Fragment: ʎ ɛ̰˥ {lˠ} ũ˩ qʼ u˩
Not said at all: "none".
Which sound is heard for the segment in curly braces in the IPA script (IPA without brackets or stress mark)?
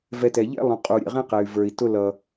lˠ